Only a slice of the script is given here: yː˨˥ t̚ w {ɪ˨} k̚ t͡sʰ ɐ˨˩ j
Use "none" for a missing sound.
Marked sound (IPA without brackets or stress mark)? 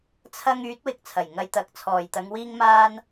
ɪ˨